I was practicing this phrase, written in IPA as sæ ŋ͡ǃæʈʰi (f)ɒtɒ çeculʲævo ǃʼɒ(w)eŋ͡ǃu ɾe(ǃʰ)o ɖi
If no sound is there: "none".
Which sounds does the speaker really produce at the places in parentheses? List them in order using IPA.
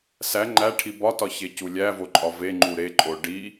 b, v, ǃʼ

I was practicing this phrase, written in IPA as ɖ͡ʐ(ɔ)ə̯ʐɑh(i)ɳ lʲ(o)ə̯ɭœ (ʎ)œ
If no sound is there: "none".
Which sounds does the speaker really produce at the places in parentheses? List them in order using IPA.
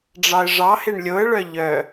ɑ, e, o, ʎ

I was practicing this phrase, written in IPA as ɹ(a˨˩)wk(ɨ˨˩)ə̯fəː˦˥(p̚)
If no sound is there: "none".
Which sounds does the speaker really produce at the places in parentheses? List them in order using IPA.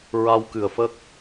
a˧, ɨ˨˩, k̚

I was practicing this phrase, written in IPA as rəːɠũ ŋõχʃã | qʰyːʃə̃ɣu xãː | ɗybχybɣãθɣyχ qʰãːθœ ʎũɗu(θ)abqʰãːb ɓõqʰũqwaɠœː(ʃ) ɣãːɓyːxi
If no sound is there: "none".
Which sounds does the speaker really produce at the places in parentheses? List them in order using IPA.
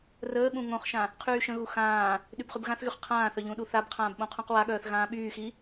θ, θ

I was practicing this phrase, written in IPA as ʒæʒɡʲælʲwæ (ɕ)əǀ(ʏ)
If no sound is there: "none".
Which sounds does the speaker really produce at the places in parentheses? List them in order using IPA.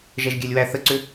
θ, ʏ

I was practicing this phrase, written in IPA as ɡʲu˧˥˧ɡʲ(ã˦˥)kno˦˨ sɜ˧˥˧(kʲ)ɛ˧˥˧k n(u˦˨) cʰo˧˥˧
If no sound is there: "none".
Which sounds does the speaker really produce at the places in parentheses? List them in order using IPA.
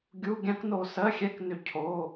ã˦˥, xʲ, ʏ˦˨

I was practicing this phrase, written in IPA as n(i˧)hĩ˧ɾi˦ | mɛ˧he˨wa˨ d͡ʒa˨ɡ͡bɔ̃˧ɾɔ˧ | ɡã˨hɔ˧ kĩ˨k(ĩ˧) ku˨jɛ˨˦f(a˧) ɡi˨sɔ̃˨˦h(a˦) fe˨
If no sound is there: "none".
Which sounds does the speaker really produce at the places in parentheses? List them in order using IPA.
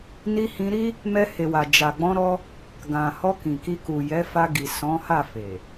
i˧, i˧, a˧, a˦˨

